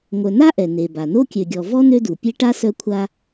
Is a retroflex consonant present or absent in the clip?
present